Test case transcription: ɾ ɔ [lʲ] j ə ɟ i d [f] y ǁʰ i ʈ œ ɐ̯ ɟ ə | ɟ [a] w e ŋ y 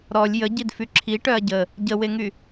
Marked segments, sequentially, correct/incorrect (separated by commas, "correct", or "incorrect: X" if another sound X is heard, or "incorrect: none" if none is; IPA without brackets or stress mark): correct, correct, incorrect: ə